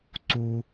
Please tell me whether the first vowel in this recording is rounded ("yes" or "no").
yes